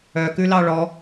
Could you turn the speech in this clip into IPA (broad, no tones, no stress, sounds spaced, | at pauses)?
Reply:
œ k ʉ l ɑ ɭ ɔ